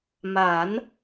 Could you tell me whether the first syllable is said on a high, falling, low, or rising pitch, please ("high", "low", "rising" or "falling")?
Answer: rising